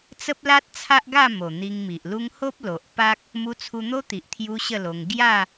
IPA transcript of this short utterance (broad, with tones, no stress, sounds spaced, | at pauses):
t͡s ə˦ p̚ l a˦ t̚ t͡sʰ a˦ ʔ ɡ a˥˧ m o˨˩ n̪ i˧ ŋ m i˨ ʔ l u˦ ŋ h o˦ p̚ l o˨ ʔ p a˦ k̚ | m u˧ t͡sʰ u˧ n̪ o˦ t̪ i˨ ʔ t̪ʰ j u˦ ɕ ə˥˧ l o˧ ŋ ɡ j a˥˧